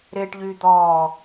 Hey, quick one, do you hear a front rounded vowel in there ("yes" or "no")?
yes